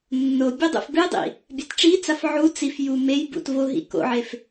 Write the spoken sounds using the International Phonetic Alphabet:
nː o bʲ o dˤ ṵ f b ɨ dˤ ḭ | bʲ a t ʈ͡ʂ i t͡s a f ʕ u t͡s i f j u m e j b ṵ t v o ɦ ḭ k o̰ ʕ e f

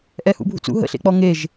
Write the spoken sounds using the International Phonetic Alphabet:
ʔ ɛ h ṵ bʱ ṵ t͡s ṵ ɦ ə̰ ɬ ḛ k͡p ɔ ŋ e ʒ

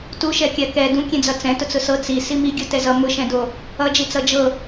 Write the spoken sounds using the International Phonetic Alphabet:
t u ʃ ɛ kʲ a k ɛ d ũ kʲ ɛ̃ d͡z ʌ t͡s ɛ̃ t ʊ t͡s ʊ s ɤ t͡s i s i m i ɡʲ ɤ t ɛ z ʌ m ʊ ʃ ɛ̃ d o | ʌ d͡ʒ i t͡s ʌ d͡ʒ ɤ

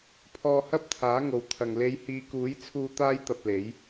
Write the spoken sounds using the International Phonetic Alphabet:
pʰ ɔː˧ h ɐ˥ p̚ t̪ʰ aː˨˥ ŋ o˨ w t̪ʰ ɐ˨ ŋ l e˨˧ j h iː˨˧ k uː˨˥ j t͡sʰ uː˧ t̪ aː˥ j t̪ ɐ˧ p̚ l e˨˥ j

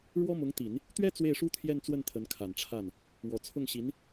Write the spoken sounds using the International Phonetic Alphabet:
ɻ w ɔ˥ m ʊ˧˥ ŋ t̪ i˨˩˦ n | t̪ ɥ ɛ˥ t͡s w e˥˩ ɪ̯ ʂ u˥ t̪ʰ j ɛ˥˧ n t͡s w ə˥˩ n t̪ʰ ə˧˥ n kʰ a˨˩ n ʈ͡ʂʰ a˥˩ n | w ɔ˨˩ t͡sʰ ʊ˥˩ ŋ ɕ i˧˥ n

